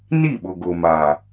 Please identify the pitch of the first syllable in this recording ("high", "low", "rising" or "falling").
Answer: falling